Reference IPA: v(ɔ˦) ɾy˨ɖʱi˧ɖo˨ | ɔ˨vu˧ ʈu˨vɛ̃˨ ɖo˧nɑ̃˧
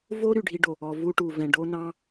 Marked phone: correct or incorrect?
incorrect